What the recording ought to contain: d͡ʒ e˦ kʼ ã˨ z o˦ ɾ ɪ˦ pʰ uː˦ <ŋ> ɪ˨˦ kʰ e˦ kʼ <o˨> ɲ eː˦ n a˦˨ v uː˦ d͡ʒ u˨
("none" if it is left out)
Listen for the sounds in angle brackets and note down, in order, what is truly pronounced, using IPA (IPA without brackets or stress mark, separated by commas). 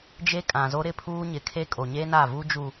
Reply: ɲ, o˨